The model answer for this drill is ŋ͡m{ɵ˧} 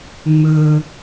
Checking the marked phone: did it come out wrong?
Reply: no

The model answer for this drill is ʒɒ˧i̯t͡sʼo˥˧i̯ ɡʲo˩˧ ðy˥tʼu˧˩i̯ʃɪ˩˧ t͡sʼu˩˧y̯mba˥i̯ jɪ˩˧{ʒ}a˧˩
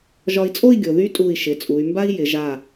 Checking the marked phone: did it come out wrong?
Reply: no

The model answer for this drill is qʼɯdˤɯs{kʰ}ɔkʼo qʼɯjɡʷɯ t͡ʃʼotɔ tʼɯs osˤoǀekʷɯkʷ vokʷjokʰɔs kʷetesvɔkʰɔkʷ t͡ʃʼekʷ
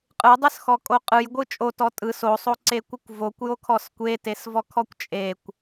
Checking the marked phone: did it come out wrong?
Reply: yes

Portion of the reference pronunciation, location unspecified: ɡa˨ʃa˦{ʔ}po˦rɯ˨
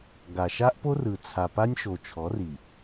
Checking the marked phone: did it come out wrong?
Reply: no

